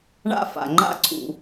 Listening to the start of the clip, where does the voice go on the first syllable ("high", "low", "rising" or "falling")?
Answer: falling